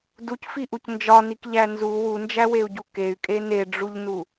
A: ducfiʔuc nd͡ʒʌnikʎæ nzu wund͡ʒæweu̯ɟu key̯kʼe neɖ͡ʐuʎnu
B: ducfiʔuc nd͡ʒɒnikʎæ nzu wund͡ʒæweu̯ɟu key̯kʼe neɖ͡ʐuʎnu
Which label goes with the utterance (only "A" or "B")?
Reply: B